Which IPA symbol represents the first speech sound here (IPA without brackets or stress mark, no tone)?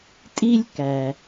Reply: tʼ